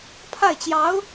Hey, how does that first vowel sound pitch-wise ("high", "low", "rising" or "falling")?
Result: falling